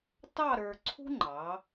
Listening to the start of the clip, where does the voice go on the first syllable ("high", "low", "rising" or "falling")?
falling